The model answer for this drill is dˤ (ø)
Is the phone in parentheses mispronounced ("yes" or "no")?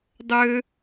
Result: no